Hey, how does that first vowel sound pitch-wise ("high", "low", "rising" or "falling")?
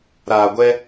low